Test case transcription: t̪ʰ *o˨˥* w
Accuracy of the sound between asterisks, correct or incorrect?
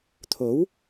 correct